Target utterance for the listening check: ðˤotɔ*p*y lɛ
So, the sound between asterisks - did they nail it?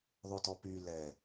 yes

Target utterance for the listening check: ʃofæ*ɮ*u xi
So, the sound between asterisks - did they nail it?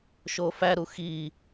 no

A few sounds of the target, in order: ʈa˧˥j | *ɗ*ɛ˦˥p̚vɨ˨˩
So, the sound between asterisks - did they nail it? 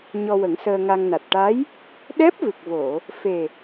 yes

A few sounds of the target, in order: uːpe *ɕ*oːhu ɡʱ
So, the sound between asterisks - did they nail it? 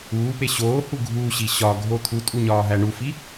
yes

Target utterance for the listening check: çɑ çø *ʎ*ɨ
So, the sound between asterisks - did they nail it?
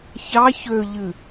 yes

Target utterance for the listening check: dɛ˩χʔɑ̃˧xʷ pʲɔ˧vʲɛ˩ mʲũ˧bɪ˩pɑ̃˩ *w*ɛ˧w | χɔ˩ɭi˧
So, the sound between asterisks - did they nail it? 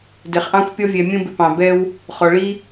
no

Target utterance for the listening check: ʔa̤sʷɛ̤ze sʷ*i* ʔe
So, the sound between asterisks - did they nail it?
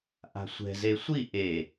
yes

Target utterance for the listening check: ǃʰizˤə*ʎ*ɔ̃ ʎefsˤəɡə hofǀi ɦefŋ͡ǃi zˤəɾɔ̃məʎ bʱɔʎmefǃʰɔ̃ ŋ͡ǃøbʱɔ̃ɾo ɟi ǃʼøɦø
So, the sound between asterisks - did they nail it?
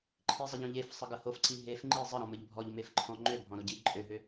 yes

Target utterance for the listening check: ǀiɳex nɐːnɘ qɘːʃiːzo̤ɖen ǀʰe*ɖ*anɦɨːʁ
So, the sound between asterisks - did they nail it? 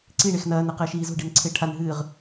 no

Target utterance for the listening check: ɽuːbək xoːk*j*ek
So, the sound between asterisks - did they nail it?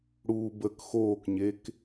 no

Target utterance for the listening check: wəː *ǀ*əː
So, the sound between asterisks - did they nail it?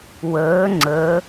no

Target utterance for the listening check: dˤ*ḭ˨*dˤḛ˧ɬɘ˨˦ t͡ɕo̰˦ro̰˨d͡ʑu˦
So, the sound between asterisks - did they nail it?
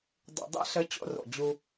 yes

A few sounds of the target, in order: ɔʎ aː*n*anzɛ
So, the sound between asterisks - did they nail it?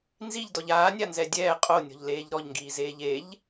no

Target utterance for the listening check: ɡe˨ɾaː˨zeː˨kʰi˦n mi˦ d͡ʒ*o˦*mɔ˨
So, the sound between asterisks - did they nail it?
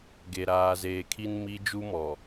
no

